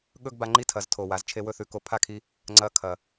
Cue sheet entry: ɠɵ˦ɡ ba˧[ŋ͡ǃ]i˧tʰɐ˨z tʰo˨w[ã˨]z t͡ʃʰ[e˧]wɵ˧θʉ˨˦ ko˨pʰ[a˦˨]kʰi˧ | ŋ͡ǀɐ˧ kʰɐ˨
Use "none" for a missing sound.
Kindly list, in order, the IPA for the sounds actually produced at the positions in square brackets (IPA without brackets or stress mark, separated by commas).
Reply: ŋ͡ǃ, a˨, e˧, a˦˨